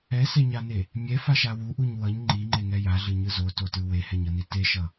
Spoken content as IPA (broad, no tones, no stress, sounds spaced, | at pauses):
ɛ s ɛ ɲ a n e | mʲ ɛ f a ʃ a w u ʔ u ɲ w ʌ ɲ ŋ͡ǃ i ŋ͡ǃ e ŋ ɛ j a ɮ ɯ ɲ ɯ z o t o t ɯ w e h ɛ ɲ ʌ n i t e ʃ ʌ